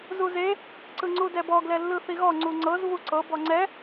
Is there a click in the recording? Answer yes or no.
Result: yes